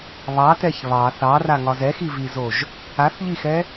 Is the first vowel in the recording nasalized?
no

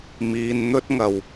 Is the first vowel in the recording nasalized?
no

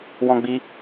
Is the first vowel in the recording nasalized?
yes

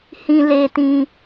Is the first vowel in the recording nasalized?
yes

